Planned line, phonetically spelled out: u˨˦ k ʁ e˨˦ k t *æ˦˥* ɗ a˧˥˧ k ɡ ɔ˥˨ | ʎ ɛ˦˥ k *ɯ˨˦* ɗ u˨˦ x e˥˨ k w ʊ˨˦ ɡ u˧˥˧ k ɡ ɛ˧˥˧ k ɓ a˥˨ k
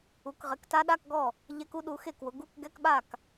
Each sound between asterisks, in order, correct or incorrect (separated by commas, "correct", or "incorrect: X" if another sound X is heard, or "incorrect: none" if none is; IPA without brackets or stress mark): incorrect: a˦˥, incorrect: u˨˦